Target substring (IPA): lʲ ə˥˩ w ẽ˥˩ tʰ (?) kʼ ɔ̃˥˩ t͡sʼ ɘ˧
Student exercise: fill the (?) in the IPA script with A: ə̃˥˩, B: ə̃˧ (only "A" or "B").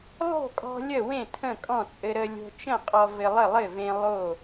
A